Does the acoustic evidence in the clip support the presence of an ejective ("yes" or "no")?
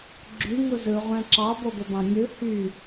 no